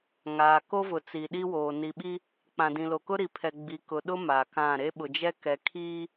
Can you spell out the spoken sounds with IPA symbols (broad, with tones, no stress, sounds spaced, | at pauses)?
ŋ aː˨ k o˦ v ʊ˨ t͡s i˨ ɗ i˦ w oː˨ n i˨ ɓ i˦ | k͡p ã˨ d ĩ˨ l o˨ k ʊ˦ ɾ i˨ pʰ ɛ˨ ɡ͡b i˨ k ʊ˨ ɗ ʊ˦ m a˨ k ã˦˨ ɾ e˦ ɓ ʊ˨ d͡ʒ ɛ˦ k ɛ˨ kʰ iː˦